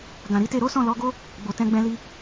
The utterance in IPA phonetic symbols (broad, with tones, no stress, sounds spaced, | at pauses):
ɡ ã˨ ɾ i˨˦ t e˦˨ ɾ o˨˦ s ɔ̃˦˨ l ɔ˨˦ ɡ o˦ | ɡ͡b o˨ t ɛ̃˧ ɡ͡b ɛ̃˧ l i˧